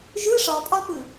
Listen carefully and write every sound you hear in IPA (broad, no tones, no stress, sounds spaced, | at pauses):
ʒ ɯ ʂ ɒ pʼ ɒ p ɯ